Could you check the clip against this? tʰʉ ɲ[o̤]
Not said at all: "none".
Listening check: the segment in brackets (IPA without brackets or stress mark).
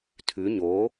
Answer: o